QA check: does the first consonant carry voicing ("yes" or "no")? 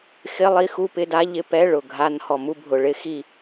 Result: no